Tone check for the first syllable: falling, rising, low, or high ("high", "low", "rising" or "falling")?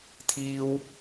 high